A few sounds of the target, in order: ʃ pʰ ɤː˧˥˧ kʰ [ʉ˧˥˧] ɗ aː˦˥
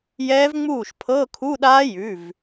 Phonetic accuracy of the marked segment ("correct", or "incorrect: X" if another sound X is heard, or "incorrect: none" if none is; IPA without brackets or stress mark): incorrect: u˧˥˧